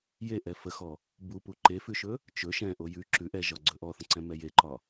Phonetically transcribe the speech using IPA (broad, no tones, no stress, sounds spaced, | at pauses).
j e ʔ ɛ f ə x ɔ | b u p u ǃ e f ʉ ʃ ɵ | t͡ʃ ɵ ʃ ɛ̃ ʔ o j ʉ ǁ ʉ ʔ ɛ ʒ ɒ ɡ͡ǀ ɵ ʔ ɔ θ ə̃ ǀ ɛ̃ m ɛ j e ǃ ɒ